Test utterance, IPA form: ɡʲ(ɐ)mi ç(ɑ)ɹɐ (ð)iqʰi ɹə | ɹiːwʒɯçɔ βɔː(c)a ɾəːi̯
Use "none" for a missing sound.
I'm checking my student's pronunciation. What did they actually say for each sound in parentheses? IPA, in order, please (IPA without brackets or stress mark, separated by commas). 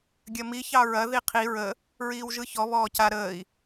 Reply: ɐ, ɑ, ð, c